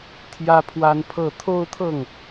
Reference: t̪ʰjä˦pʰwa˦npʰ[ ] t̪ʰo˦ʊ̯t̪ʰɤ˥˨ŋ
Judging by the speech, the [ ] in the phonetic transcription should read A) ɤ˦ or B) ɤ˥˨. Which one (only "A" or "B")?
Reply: B